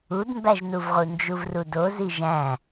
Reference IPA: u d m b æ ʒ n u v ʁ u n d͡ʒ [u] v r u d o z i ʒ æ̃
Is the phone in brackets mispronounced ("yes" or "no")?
no